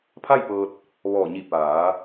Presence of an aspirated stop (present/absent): present